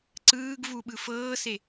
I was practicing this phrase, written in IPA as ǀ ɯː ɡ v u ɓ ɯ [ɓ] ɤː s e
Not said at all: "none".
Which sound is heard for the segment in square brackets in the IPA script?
f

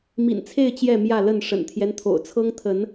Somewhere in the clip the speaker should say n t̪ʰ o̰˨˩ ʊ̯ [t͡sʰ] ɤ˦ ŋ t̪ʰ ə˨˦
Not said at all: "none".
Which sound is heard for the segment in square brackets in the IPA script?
t͡sʰ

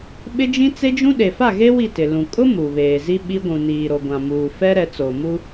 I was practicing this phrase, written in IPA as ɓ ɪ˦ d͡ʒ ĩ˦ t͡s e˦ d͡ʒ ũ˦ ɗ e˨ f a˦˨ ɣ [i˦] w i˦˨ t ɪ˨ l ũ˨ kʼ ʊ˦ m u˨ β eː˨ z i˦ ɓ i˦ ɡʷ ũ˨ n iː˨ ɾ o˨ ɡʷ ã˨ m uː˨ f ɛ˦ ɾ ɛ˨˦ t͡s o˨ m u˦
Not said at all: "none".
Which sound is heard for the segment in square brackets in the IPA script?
e˦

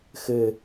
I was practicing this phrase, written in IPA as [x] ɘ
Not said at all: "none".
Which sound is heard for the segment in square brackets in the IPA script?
x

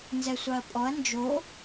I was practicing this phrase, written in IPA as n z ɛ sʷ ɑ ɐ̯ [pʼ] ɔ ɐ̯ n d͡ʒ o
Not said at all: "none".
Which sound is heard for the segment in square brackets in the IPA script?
pʼ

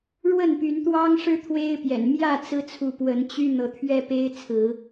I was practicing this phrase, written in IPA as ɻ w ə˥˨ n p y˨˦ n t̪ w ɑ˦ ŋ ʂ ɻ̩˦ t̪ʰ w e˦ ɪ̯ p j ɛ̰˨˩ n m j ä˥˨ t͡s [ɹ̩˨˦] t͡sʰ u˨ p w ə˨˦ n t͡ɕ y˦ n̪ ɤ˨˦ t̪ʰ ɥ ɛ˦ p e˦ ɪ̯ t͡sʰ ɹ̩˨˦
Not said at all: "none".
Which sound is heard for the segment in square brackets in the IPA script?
ɹ̩˦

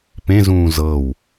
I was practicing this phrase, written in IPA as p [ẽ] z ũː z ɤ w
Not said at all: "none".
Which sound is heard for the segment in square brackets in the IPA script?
ẽ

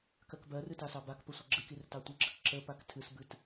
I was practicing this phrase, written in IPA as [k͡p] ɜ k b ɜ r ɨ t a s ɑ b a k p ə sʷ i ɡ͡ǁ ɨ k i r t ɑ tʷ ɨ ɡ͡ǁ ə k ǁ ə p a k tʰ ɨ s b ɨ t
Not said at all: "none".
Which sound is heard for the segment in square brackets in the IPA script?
k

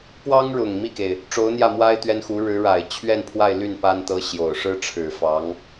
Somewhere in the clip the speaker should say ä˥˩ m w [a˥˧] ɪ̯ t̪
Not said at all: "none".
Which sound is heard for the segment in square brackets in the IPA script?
a˥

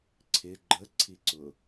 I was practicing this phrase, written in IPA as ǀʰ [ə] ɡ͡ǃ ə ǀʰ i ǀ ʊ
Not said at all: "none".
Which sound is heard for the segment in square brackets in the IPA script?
ɪ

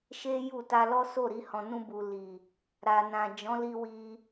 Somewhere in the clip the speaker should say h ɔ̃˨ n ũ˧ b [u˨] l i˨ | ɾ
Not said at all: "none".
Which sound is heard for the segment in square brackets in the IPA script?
u˨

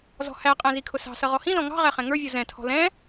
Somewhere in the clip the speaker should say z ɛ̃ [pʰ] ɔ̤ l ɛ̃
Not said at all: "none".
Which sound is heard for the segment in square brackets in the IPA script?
tʰ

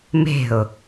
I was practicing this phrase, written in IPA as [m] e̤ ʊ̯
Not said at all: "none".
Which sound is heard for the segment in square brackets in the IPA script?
m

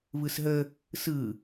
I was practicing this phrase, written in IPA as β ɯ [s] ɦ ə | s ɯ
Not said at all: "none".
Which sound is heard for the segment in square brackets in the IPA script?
s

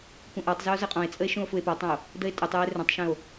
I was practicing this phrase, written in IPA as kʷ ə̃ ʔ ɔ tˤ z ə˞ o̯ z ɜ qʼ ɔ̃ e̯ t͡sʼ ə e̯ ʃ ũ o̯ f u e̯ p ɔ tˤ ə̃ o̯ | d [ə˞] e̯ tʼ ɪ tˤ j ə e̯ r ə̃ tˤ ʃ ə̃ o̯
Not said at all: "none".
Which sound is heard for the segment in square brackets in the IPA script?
ə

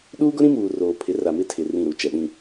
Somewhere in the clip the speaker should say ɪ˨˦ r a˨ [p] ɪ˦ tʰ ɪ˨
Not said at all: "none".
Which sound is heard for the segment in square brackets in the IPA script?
m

